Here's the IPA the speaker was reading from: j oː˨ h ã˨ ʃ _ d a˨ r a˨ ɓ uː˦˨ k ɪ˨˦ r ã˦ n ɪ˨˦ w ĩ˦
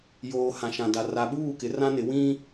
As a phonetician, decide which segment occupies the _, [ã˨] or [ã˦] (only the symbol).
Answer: ã˨